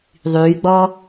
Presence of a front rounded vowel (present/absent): present